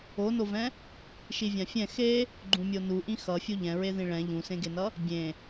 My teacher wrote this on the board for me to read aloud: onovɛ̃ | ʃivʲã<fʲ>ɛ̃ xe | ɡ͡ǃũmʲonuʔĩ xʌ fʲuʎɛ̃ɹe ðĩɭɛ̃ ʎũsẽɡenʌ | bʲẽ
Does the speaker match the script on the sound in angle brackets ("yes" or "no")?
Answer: yes